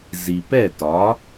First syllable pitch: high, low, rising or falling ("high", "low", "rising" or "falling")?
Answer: low